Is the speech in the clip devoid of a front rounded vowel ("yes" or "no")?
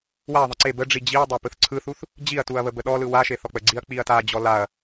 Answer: yes